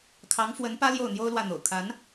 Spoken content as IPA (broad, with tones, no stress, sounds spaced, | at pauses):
kʰ ɑ˧˥ ŋ f w ə˧˥ n p ä˥ l j o˥˩ ʊ̯ n̪ j o˥ ʊ̯ l w ä˥˩ n̪ o̰˨˩ ʊ̯ kʰ a˧˥ n